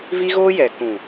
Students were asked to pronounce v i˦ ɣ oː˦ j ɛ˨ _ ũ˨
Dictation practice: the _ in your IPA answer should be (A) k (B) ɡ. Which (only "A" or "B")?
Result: A